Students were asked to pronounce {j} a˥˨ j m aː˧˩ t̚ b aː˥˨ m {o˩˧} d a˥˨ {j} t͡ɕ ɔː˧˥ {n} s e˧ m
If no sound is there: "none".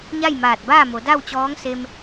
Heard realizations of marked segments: ɲ, o˩˧, w, ŋ

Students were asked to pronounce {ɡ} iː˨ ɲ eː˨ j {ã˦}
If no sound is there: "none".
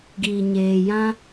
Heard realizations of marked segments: ɡ, ã˦

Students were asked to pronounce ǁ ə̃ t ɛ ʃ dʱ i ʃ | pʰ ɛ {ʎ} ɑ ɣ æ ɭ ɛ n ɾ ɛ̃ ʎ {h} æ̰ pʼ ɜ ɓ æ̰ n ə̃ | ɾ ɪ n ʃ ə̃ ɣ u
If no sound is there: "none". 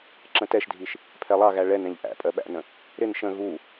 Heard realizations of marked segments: lˠ, ʔ

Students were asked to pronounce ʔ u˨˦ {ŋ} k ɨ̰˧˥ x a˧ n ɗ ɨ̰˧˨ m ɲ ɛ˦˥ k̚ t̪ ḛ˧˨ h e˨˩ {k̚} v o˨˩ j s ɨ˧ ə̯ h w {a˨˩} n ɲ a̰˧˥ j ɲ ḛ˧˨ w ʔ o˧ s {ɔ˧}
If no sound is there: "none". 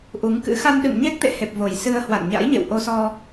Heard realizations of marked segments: ŋ, p̚, a̰˧˨, ɔ˧

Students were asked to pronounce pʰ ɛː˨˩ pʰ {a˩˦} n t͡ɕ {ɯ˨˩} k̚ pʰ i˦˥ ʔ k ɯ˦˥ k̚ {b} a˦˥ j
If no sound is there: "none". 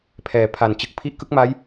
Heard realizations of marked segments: a˨˩, ɯ˨˩, m

